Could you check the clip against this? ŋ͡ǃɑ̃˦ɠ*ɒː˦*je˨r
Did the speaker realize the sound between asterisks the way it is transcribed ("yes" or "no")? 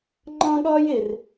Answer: yes